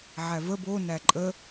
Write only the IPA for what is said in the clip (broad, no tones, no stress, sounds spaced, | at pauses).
ʕ æ v ə b o n æ ǃʼ ə